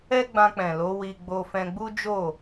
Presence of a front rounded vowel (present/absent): absent